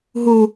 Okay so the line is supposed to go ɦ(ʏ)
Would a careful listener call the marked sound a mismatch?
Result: yes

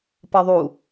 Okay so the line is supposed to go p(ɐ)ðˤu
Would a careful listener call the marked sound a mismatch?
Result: no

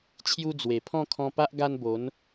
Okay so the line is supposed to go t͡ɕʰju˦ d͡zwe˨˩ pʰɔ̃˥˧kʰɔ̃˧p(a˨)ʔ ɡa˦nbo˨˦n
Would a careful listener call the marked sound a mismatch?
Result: yes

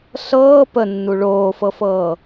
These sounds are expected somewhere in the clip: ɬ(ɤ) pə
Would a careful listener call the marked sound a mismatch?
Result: yes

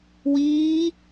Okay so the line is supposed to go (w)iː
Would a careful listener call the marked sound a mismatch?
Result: no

